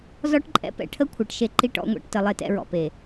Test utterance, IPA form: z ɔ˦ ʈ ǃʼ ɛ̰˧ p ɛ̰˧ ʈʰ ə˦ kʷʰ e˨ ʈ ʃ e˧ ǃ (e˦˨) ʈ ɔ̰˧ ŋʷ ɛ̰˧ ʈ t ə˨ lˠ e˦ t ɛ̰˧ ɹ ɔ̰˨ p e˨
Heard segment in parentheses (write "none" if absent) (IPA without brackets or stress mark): i˦˨